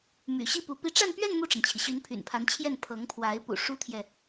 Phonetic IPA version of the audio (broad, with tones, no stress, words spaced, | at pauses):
my̰˨˩ɕi˥˩ pu˧˥ pi˧˥ʈ͡ʂa˥˧npɥɛ˥˧n mu˥˩ʈ͡ʂə˩nt͡ɕʰi˩ ɕy˧˥npʰy̰˨˩npʰa˧˥nt͡ɕʰjɛ˥˩n pʰɤ˧˥ŋpʰwa˧˥ɪ̯ pṵ˨˩ ʂu˥t̪ʰjɛ˨